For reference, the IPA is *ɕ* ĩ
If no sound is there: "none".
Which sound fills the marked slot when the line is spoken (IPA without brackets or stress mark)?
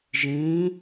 ʒ